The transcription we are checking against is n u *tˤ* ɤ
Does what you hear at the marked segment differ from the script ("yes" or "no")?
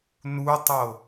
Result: no